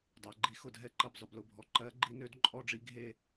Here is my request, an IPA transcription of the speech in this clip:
dˤ a˩˧ ɡ͡ǃ i˧˥ x ʊ˧˩ dʱ ɛ˥˧ ǃ ɜ˧˩ b zˤ ʊ˩˧ b l ʊ˧˩ bʱ ɔ˧˩ ǃ ɜ˧˥ ɡ͡ǃ i˧˥ n ø˧˥ d ǃʼ ɔ˥˧ ɖ͡ʐ i˧˥ ɡʱ e˥˧

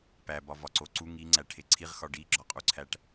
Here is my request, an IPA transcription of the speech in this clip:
p æ b ɒ v ɒ ǀ o ǀ u ŋ i ŋ͡ǀ æ ʈʰ e ǀʰ i ʁ x ɒ ɖ i ɡ͡ǁ ɒ qʼ u ǀʰ æ ʈ

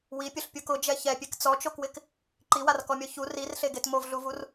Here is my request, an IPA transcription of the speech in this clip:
w i pʲ ʊ ɬ pʲ u k ʊ d͡ʒ ɛ ç ɛ pʲ e k t͡s ɔ t͡ʃ o k w ɪ k | ǃ i w a r k ɔ mʲ ɔ ç u r i r ɬ e ɡ e t m o v ɮ u v u r

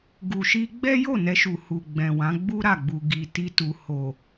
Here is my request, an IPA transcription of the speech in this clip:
ɡ u˨ ʃ i˧ ɡ͡b ɛ˦ j o˦˨ n ɛ˧ ʃ u˨ h u˨ ɡ͡b ɛ̃˨ w ã˨˦ ɡ͡b u˦ ɾ a˦˨ ɡ͡b u˨ ɡ i˨ t i˧ t u˨ h o˨

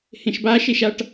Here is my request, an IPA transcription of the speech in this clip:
h ẽ ʃ b a ʃ e ʃ a ʈ

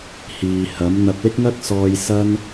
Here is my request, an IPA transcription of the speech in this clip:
h iː˨ h ɐ˨˥ m n̪ ɐ˧ p̚ l ɪ˥ k̚ ŋ ɐ˥ k̚ s ɔː˧ j s ɐ˥ n

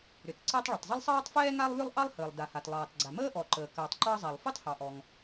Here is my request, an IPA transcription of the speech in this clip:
ɾ ʏ˩ t ǀ ɛ˥ tˤ ɭ ə˩ tˤ zˤ ə˥ lˠ sˤ ɑː˥ tˤ f ɛː˥ ŋ a˥ lˠ β ʏ˥ lˠ ʔ ɑ˥ lˠ h əː˩ lˠ d a˩ h a˩ t lˠ ɑː˩ t ɡ͡ǀ a˩ m əː˥ ʔ ɔ˩ ǃ əː˩ k əː˩ tˤ ǃ ɑ˥ zˤ a˩ lˠ f y˥ tˤ h ɑ˩ ʔ ɔ˩ ŋ

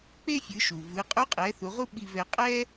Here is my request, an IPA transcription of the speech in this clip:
k͡p e˥ fʲ ɯ˩˧ ʃ u˩ v ɯ˩˧ qʼ u˧˥ qʼ ɛ˩˧ θ u˩˧ ʁ u˥ ɓ i˧ v ɛ˧ qʼ ɛ˥

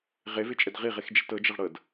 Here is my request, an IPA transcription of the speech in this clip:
ʁ e v e t͡ʃʼ ə d ʁ i ʁ e x d͡ʒ e t ɤ d͡ʒ ə ʁ ɽ ɤ d

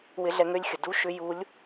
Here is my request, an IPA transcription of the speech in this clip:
w ɪ˧˥ ɮ ɛ˧ ŋ ø˥ lʲ xʲ ə˩ d u˥ ʃ ʏ˧˥ j u˧˥ lʲ

